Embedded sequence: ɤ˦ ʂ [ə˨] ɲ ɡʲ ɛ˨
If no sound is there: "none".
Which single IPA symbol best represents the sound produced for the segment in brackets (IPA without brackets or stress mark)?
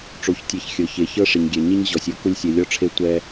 ɪ˨